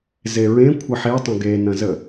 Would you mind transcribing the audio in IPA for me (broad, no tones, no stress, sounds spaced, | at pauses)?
z e ɹ ẽ kʷʰ ɐ ħ e tˤ õ ɡ e n ɐ̃ z ə